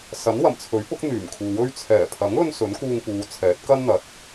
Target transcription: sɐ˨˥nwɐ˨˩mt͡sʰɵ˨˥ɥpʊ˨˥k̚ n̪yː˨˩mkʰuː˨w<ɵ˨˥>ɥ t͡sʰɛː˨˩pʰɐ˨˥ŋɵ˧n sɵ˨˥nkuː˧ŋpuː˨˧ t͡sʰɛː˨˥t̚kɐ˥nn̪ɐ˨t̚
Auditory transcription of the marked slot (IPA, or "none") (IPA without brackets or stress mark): ɵ˥